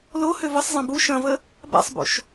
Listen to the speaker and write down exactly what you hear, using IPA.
l o h ø v ə sˤ zˤ ɐ̃ b u ʃ ɐ̃ v ə | b a̰ sˤ b o̰ ʃ

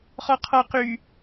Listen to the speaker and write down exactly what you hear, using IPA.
χ ɔ qʰ ɔ q y

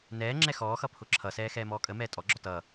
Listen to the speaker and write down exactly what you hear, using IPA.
n ɛː ŋ͡ǁ ɛ x ɔː x ʌ pʰ ʊ ǁʰ ʌ s ɛː x ɛː m ɔː kʼ ə m ɛː tʼ ɔ ɡ͡ǁ ɔ t ʌ

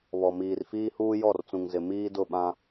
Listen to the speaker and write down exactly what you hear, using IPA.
β ɔ˨ m iː˨ r f iː˦ h uː˦ j ɔ˦˨ r t͡s ũ˨ ŋ z ɪ˨ m iː˦ d ʊ˦˨ ɓ ã˦

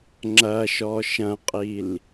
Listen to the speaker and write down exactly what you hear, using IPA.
ŋ͡ǁ ɐ ʃ ɔ ʃ ɐ̃ qʼ i l

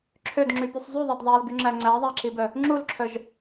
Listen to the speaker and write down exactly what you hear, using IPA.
ǁʰ ø d ŋ͡ǁ y p y sˤ zˤ y ðˤ æ d ðˤ æ l ɡ y ŋ͡ǁ æ ŋ͡ǀ æ ðˤ æ ǁ i b œ | ŋ͡ǁ u l ǁʰ œ ʒ

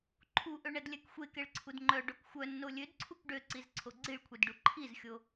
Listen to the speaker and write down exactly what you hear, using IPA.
ǃʰ u ʔ ø ɳ ɛ d lʲ ɛ k xʷ e k e ɭ ǀʰ u d ŋ͡ǃ œ ɖ o k xʷ œ nː o lʲ ø d ǀʰ u k ɖ ø ǀ i z ǀʰ o ɡ͡ǀ i ɭ kʷʰ i d ɖ u ǃʰ i z xʲ o

